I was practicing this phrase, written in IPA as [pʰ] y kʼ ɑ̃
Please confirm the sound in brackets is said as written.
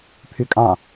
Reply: yes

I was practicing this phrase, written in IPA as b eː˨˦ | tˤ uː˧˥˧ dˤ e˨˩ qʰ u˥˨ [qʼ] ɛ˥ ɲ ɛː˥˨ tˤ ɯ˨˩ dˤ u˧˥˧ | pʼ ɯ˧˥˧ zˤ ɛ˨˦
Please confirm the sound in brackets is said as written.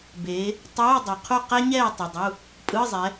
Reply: no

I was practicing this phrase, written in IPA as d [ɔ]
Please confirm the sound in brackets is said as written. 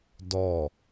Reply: yes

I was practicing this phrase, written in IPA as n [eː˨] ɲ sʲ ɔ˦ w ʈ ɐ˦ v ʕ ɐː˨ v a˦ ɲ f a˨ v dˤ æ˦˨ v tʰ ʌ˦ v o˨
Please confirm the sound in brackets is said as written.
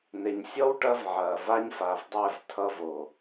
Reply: no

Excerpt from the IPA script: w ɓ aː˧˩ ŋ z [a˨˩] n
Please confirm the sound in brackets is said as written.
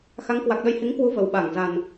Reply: yes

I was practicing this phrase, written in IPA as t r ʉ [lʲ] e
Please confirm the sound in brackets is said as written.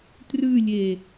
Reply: yes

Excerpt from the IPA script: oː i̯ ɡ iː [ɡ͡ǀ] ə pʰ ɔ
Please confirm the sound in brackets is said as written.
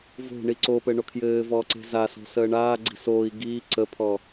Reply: no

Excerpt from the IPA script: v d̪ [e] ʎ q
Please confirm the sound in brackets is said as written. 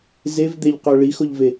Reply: yes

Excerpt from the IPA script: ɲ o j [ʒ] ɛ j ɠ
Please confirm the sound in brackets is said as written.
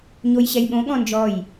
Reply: no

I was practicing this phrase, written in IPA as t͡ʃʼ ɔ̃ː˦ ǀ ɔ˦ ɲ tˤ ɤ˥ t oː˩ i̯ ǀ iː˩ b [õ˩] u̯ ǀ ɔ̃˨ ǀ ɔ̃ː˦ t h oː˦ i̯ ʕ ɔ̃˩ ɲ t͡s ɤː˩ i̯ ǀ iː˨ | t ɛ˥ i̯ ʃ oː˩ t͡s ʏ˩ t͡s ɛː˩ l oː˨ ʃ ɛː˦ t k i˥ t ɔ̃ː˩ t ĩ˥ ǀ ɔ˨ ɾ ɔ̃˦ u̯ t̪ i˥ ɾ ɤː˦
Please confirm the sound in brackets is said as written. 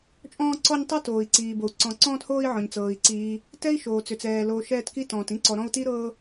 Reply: no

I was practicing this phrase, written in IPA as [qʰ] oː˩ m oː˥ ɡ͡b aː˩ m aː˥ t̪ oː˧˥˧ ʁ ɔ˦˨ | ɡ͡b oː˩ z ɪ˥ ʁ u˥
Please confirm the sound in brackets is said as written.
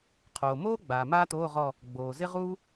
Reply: yes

